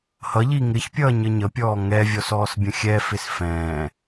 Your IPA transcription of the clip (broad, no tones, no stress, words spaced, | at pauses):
hʌʎi ŋɪçpʲʌː ɲəɲəpʲɔː ŋɛvʲɔs ɔːsbʲə̃xʲɛfɪs fɛ̃ː